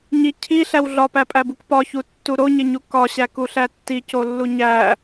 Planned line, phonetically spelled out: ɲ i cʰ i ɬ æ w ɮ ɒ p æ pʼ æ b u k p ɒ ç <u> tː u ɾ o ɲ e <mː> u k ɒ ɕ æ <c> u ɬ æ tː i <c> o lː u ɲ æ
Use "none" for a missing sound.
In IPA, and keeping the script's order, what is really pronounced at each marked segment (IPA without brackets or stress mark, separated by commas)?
u, ɲ, k, c